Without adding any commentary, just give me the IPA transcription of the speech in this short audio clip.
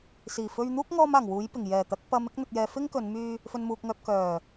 s iː˨˩ f ɵ˧ ɥ n̪ uː˥ k̚ ŋ ɔː˧ m aː˨˩ ŋ w uː˨˥ j p ɪ˨˩ ŋ j ɛː˨˩ t̪ ɐ˨˥ k̚ p ɐ˨˧ m ɪ˧ k̚ n̪ ɵ˨ t̚ j ɛː˨ f ɪ˥ ŋ k ɵ˨˧ n m yː˧ | f ɵ˨ n m uː˨ k̚ ŋ œː˨ p̚ k œː˨˩

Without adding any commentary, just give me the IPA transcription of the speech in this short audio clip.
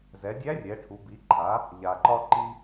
z ɛ˩˧ dʲ æ˧˥ rʲ ɛ˩˧ ʈʰ u˩˧ b i˩˧ ǃʰ a˩˧ | ʎ a˩ ǃ ɒ˧ ǃ i˧

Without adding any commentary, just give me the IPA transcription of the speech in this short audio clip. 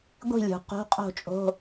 ɡʷ i̤˥˩ lʲ ṳ˩ q o̤˧˥˧ qʼ o̤˥˩ t͡ʃʼ o̤˧˥˧

